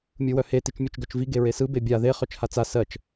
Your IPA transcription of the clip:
mʲ ɯ w œ h e t i t͡ʃ mʲ œ t͡ʃ ɡ œ t͡ʃ v i ɡ e ɹ e s ɯ b e bʲ a ð e χ œ t͡ʃ h a t͡s a s ɜ t͡ʃ

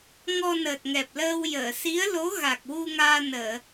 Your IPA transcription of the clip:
ŋ ɔ˧ n əː˨˩ t̚ ŋ ɛ˨˩ p̚ l əː˧ w j əː˨˩˨ s i˧˥ ə̯ l o˧˥ ɣ a˨˩ k̚ w u˧ ŋ aː˧ n əː˨˩˨

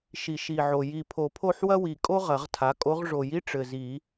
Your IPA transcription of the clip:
ʃ i˨˩˦ ʃ i˨˩ ʕ o˨˩ j i˨˩ pʰ o˨˩˦ pʰ o˥˨ ħ w ɐ˥ w i˨˩ kʼ o˥ ʁ ɐ˨˩˦ ʁ tʰ a˩˥ kʼ o˧˥ ʁ ʐ o˨˩˦ j i˥ ʈ͡ʂ ɘ˨˩ z i˨˩˦

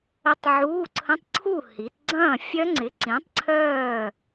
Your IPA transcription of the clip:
ə˦˥ tˤ ʕ uː˧˥˧ ǀʰ ə̃˧˥˧ tˤ ǀʰ u˥˨ h i˩˧ t ɡ͡ǀ ɐ̃ː˥˨ fʲ œ˦˥ ŋ͡ǀ ɪ˨˥ ǀ ĩ˨˥ tˤ ǀʰ œː˥˨

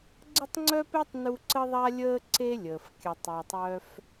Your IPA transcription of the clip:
ɡ͡ǀ ə˥ tˤ ŋ͡ǀ œ˥ p e˥ tˤ n u˦ ǀ ə˥ ðˤ a˥ lʲ əː˥ ǀ e˥ lʲ əː˩ f kʲ ə˨ tˤ e˨ tˤ œ˦ f

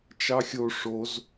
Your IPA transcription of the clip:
t͡ʃ ɑ xʲ o ʂ o z

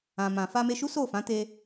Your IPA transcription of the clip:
ã˨ m ã˨ f a˧ m e˧ ʃ u˦ s o˦˨ f ã˨˦ t e˧

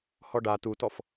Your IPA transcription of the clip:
h ɔ ɖ a t u t ɔ f

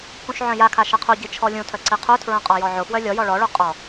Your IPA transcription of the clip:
k ũ ʃ ʕ œ̃ j a kʰ a ʃ ə qʰ u ɟ i t͡ʃʰ ɔ lʲ ũ tʰ œ ǀ i qʰ u tʰ ɹ œ̃ qʼ ɔ j ɔ ʕ ʊ f w œ lʲ ɔ j ɔ ɭ ɔ ɭ u qʼ ɔ

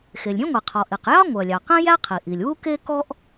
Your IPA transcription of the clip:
x e˩ lʲ ɾʲ ẽ˥ ŋʷ i˩ qʰ ɔ˩ ʔ i˩ q j ɑ˥ ŋʷ œ˩ lʲ ɑ˩ q ẽ˥ j æ˥ qʰ i˩ ʔ i˩ lʲ w u˥ k e˥ k ɔ˥ ʔ

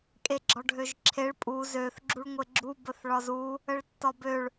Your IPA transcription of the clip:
kʼ e ɡ͡ǁ ɒ ɖʱ ø ʒ ǁʰ e ɭ pʼ u z ø θ ɡ͡ǁ u ɭ ŋʷ e ɡ͡ǁ u b ə θ ɭ ɒ z u | ə ɭ tː ɒ b ø ɭ

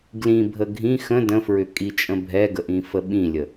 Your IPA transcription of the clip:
ɡ l ĩ bʱ ə ɡʱ ĩ x ə̃ d ə̃ f ɹ ʏ kʼ i t͡ʃʼ ə̃ bʱ ɛ ɡ ə ʔ ĩ f ə ɓ ĩ lʲ ə

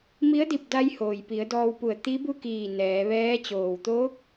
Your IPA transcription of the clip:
m i˧˥ ə̯ d i˧˩ p̚ d a˧ j h oː˩ j p i˩˧ ə̯ d ɔː˧ w p u˧˩ ə̯ t̪ i˧˥ b u˥˨ k iː˧˩ n ɛː˩˧ ʋ ɛː˧˥ t͡ɕ oː˩ w t̪ oː˧˥ k̚

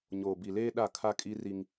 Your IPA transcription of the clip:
ɲ oː˨ b i˨ l eː˦ ɗ a˦˨ kʰ a˦ kʼ i˦ r i˦ ŋ

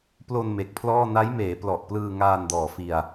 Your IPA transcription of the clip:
p l o˧ n m e˨˩ k̚ pʰ l ɔː˥˩ n a˦˥ j m eː˩˦ p l ɔ˨˩ ʔ p l ɯː˧ ŋ aː˧ n d ɔː˨˩ f i˧ a̯

